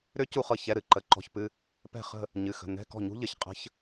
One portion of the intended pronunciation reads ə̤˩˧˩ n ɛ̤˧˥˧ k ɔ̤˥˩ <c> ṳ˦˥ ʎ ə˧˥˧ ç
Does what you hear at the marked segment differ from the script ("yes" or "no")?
yes